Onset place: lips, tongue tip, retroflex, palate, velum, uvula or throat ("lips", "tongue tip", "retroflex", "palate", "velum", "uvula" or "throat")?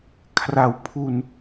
velum